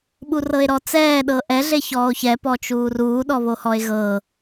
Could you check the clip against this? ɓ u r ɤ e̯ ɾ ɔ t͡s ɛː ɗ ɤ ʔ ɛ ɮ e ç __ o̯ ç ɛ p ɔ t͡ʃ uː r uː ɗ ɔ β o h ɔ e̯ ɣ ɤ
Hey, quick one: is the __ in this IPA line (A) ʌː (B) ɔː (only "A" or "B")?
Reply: B